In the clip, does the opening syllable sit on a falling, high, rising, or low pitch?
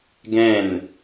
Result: falling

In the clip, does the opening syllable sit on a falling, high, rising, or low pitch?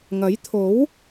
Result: rising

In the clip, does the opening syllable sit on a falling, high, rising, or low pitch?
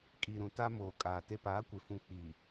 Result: low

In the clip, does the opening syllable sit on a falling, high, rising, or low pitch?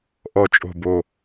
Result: low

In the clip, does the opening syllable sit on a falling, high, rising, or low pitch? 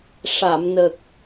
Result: low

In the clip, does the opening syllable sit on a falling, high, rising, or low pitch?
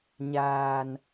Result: low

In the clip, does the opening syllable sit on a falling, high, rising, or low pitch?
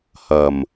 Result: low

